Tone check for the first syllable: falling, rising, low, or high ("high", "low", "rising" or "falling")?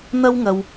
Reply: high